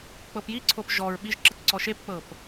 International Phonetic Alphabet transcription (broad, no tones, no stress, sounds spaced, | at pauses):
k͡p ɤ p j i ǀʰ o p ʒ ɔ ɹ ɓ i ʒ ǁ ɯ t ǀ ɔ ʃ e p k͡p ɤ p